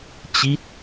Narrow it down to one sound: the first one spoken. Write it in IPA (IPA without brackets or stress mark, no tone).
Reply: t͡ɕ